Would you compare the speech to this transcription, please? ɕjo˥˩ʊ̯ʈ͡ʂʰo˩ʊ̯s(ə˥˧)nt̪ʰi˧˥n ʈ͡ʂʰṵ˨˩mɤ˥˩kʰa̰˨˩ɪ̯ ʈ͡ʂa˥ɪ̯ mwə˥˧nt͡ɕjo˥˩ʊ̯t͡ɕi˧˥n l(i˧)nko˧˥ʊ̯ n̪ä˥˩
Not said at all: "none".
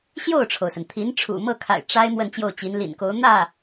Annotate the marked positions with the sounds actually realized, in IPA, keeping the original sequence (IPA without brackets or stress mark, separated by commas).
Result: ə˩, ḭ˨˩